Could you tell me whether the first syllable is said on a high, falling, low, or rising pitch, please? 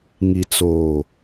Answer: low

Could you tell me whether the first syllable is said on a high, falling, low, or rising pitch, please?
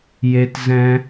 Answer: high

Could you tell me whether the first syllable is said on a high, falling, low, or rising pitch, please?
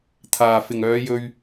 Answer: low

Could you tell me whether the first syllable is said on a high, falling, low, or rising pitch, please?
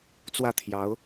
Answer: falling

